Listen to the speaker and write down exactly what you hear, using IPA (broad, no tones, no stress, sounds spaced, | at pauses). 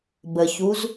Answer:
b ə ç u z